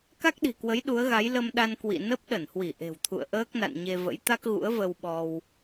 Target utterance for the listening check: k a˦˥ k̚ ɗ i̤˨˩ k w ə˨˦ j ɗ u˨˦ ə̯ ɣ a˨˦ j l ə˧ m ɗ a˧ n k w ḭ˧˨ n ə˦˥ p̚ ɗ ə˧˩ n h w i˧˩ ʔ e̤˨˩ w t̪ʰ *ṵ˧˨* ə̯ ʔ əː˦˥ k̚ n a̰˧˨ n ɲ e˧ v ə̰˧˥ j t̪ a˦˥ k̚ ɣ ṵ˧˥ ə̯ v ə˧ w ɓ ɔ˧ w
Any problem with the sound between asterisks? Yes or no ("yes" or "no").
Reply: no